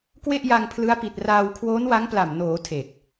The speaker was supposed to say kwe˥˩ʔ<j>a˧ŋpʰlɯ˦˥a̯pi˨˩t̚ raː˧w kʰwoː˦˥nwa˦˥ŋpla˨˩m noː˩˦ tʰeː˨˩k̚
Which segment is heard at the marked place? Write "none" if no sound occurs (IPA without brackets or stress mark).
j